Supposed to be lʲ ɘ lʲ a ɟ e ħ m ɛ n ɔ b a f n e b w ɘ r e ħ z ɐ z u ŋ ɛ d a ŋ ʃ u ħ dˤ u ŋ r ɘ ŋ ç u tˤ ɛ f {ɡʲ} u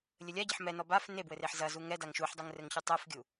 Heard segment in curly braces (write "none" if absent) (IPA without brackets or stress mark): ɡʲ